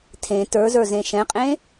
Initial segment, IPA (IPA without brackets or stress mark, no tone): tʰ